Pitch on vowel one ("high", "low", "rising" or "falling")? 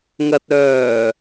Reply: low